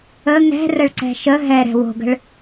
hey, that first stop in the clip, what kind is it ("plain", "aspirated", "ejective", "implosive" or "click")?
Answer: click